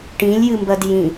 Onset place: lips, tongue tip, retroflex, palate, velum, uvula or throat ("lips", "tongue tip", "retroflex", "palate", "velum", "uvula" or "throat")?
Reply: retroflex